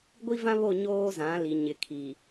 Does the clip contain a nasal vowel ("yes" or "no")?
yes